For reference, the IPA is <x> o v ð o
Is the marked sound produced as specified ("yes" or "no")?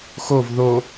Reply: yes